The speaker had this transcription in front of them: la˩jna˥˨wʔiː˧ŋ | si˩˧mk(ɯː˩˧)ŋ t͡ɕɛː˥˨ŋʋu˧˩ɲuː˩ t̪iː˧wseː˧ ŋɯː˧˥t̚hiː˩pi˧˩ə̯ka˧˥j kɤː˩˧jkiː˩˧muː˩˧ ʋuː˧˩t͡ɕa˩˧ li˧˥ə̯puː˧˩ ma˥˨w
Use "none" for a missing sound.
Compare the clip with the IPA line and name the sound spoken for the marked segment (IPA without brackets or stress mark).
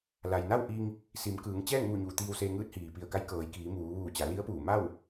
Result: ɯː˩˧